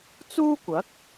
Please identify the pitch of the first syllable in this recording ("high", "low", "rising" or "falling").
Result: high